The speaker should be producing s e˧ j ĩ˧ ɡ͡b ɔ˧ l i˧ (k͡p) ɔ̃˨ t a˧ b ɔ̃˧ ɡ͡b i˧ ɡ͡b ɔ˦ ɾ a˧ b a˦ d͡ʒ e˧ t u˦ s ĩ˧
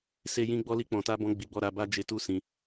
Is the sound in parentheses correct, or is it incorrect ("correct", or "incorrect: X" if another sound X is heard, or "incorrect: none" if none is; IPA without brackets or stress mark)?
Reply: correct